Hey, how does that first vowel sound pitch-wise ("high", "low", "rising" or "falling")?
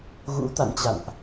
rising